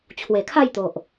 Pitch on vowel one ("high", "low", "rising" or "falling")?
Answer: low